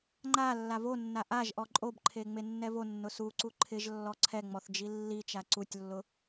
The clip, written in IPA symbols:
ŋ͡ǃa lːavonːa ʔaʒʔɔ ǃʼobǃʰe ŋ͡menːɛvonːʊ suǀu ǃʰɪʒlːɔ ǀʰɛŋ͡mɔθ d͡ʒilːit͡ʃa ǀutʲlːʊ

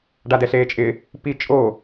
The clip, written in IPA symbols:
ɖadɛɬeːt͡ʃʼɪ | pi t͡ʃʼo

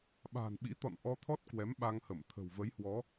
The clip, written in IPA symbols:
ɓa̤ː˨˩nɓḭ˧˥t̪ɔ̰˧˨n ʔɔ˧t̪ʰɔ˦˥t̚ kwɛ˨˦mɓa˧ŋhə˧˩m t̪ʰə̤˨˩wvə˨˦jhwɔ˨˦

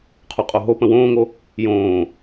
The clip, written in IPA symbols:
qʰuqʼoɦopə̃ wõːŋo | jõː

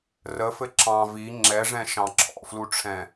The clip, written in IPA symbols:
rəfɘ ǁɑ̃ vi ŋ͡ǁɛʐɛ̃ ʃɑ̃ǁʰɔ̰fluʈ͡ʂʰɛ̃

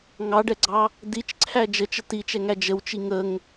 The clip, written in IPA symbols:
ŋɑɖɛɡ͡ǀɑ | dit͡ʃǀʰæ d͡ʒət͡ʃə tit͡ʃɛŋæ d͡ʒəwt͡ʃi ŋəŋ

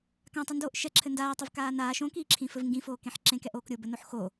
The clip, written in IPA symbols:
kãtˤindoːʔ ʃɛǁʰɘ ndaːtˤɘvkaː naːʃ õkiːǁʰĩfɘv ŋɡĩfoːkẽħ ǁẽkɛʔoːk ɾʲobɘnoħ xo

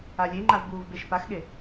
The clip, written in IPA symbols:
alʲeŋ͡ǃav buːvbeʃpaxɠe

